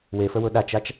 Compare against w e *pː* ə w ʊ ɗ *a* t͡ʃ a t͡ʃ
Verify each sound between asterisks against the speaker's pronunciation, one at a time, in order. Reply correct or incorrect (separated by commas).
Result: incorrect, correct